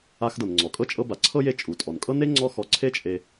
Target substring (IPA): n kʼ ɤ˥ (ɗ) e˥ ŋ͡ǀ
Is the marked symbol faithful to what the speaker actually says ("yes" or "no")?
no